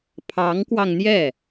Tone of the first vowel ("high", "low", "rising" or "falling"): rising